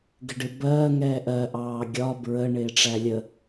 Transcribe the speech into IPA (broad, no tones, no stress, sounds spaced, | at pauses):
ɡ ɪ ɖ ɪ b ɜː ŋ ɛː ʔ ɜ ʔ ɑː ɡʲ ɒ b ɹ ə ɳ ɪː ʈ͡ʂ æ lʲ ə